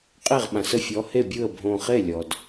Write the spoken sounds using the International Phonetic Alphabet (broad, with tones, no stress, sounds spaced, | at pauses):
qʼ e˥˩ ʁ ɓ ã˩ s ə˥˩ fʲ ɔ˨˦ h e˥˩ bʲ ɯ˥˩ ə̯ bʱ õ˧˩ χ e˥˩ lʲ ɔ˩ d